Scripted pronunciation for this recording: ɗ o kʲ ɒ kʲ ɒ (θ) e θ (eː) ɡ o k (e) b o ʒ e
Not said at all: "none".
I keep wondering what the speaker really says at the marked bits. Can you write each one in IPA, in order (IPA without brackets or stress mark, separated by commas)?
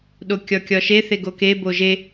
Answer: ʃ, e, e